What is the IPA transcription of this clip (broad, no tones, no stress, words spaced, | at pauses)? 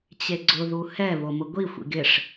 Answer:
t͡ɕeɡ͡ǀʊ ðuhɛ βomʊɡʷi xʷḭɡɪʂ